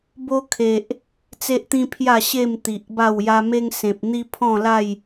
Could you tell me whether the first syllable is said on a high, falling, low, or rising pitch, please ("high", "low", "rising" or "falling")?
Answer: high